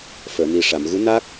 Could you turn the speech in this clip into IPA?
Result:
f əː˨˩˨ n i˨˩ ʂ a˨˩˨ m ɣ u˧˥ n a˦˥ k̚

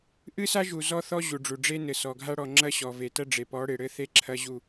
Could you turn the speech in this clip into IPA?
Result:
ʔ ɨ˦ s a˦ ʒ u˨ z ɔ˦ θ ɔ˦ ʑ u˨ ɖ͡ʐ u˨ ɖ͡ʐ e˦ n ɘ˨ s ɔ˨ ɡʱ a˦ ɽ ɔ˦˨ ŋ͡ǁ ɐ˦ ɕ ɔ˨ v e˨ t ɐ˦ ɖ͡ʐ e˨ p ɔ˨˦ ɽ e˨ ɽ ɘ˦ θ e˦ ǁʰ ɐ˦ ʑ u˦˨

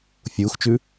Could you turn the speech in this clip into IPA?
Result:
fʲ uː x t͡ʃ ʉ

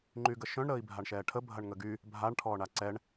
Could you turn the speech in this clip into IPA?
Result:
ŋ͡ǃ y ɡ ə ʃ œ̃ ɳ ɾ əː i̯ bʱ a ɳ ʃ ɛː ʈʰ ə bʱ ɐ ɳ ŋ ə ɡ y | bʱ a ɳ ʈʰ ɔː ɳ a ǀ ɛ ɳ

